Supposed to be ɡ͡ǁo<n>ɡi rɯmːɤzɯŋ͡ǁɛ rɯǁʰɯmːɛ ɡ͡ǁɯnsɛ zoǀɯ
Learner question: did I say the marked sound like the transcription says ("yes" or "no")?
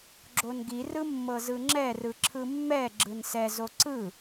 yes